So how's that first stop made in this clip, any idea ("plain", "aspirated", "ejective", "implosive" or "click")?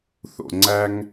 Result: click